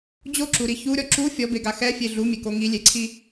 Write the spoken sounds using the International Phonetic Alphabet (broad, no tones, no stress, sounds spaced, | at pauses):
d͡ʑ o ǁ u ɾ i ç u ɾʲ ɔ ǁ u fʲ ɔ b e ɡ a x ɛ fʲ e ɮ u mʲ e k o ŋ i lʲ e ǀʰ i